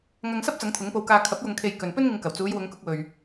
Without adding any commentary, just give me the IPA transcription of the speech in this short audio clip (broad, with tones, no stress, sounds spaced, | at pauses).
ŋ ɐ˧ ŋ s ɐ˥ p̚ t͡s ɐ˨˥ ŋ t̪ʰ ʊ˨˥ ŋ p o˧ w k aː˧ kʰ ɐ˨˥ p̚ j ʊ˨ ŋ kʰ e˨ j k ɵ˨ n p ɵ˥ n ŋ ɪ˧ ŋ k ɐ˨˩ w t͡s uː˨˧ j w ʊ˨˧ ŋ k ʊ˧ k̚ w ɵ˨ ɥ